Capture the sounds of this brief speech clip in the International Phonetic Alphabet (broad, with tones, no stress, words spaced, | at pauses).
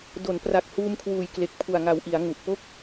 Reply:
do˩˦n pra˨˩k̚ huː˧mkʰwuː˨˩j kle˨˩k̚pʰu˨˩a̯ŋa˨˩wʔi˩˦a̯ ŋu˨˩ʔ po˦˥k̚